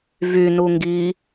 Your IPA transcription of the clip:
vynu ŋɡi

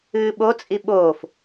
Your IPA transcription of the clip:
ɨːɓot͡sʼi ɓoːf

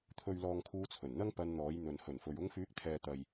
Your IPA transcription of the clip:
t̪ʰɵ˨ɥlɔː˨ŋ kʰuː˧t͡sʰɵ˨˩nn̪ɐ˥ŋ pɐ˧nn̪ɔː˨˥jn̪ɵ˨n hɵ˨˩nfɵ˨ɥ ʊ˧ŋfyː˨˥k̚t̪ʰɛː˨ t̪ɐ˨j

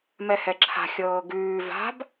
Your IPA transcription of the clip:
mɛhɛǁʰa̤ xʲɤːɡʉː va̤b

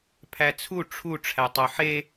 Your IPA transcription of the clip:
pʰæt͡sʰu ʈ͡ʂʰu ʈ͡ʂʰætˤoħe

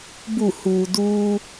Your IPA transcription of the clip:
bu˧˩huː˩duː˧

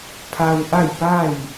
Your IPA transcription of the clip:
pʰa˧wʔa˥˨jpa˥˨j

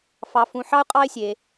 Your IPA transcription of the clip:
fɑ˧fũ˧ ħɑ˥ʊ̯qʼɑ˥ɪ̯sʲe˧

